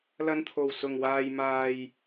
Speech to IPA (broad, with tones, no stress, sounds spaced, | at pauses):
l ɐ˧ n t̪ʰ o˨˩ w s ʊ˨˩ ŋ w aː˨ j m aː˨ j